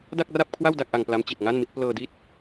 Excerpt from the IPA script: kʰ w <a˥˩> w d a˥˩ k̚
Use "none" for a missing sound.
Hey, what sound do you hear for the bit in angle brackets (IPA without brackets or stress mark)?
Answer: a˥˩